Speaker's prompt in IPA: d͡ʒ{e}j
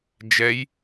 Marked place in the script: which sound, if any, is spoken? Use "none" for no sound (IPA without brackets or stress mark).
ɛ